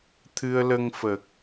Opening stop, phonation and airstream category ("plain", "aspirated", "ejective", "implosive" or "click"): aspirated